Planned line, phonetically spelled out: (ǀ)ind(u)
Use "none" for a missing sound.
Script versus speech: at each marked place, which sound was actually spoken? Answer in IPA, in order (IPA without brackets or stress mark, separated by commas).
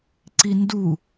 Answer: ǀ, u